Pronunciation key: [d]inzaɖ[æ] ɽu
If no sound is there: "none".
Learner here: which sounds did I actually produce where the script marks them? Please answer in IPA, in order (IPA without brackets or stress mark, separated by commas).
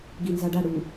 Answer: ɡ, a